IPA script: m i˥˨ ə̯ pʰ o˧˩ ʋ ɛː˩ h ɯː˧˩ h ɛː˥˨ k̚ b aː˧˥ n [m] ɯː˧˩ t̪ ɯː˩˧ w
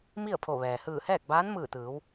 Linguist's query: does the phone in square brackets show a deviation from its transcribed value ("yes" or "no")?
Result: no